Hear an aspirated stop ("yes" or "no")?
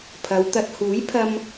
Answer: yes